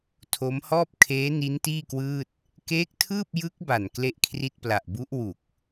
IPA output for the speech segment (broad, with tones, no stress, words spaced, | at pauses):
tʰo˦˥mhɔː˥˩p̚kʰeː˦˥ ni˦˥ntiː˥˩kwɯː˥˩t̚ | keː˦˥k̚tʰɯː˥˩p̚ jɯ˦˥k̚ ba˨˩nkle˥˩ʔkʰri˥˩t̚pla˨˩ʔ bu˦˥ʔ wu˨˩k̚